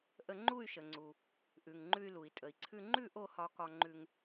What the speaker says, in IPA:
ʔə˧ŋ͡ǃu˥˧y̯ʃə˩ŋ͡ǀu˩ | ʔʉ˩ŋŋ͡ǃʉ˧y̯lu˩i̯ tʼə˩i̯ǀʰʉ˧ ŋ͡ǃʉ˥˧ ʔo˥˧hɒ˧kɒ˧ŋ͡ǃʉ˧ŋ

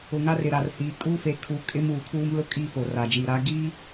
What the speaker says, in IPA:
ʊ˨ ŋa˦rɪ˨ɾa˨rhiː˨ kʼu˦fe˨˦ kʰu˨˦kʼɪ˦m uː˨kʰuː˦mlʊ˦kʼi˦˨ fo˨ra˨d͡ʒiː˨ɾaː˦ ɡiː˦

